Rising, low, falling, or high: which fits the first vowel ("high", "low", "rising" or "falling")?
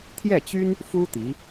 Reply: falling